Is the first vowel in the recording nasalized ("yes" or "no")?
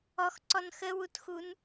no